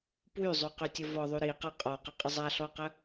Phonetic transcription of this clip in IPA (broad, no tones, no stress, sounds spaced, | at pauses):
p w y zˤ y q y tʲ ə v ɔ ðˤ y ɾ i q a qʼ ɔ q e qʼ ə zˤ a ɬ ɔ q ə